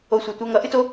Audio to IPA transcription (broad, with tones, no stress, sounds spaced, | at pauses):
o˧ sʷ ʌ˨ tʷ ɛ˧ ŋ ʌ˨˦ ʔ ɨ˦ t o˦